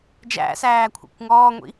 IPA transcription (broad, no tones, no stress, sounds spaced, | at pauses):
d͡ʒ æ̰ s æː kʷʰ ɛ̰ kʷ ŋ ɔː ŋʷ ḭ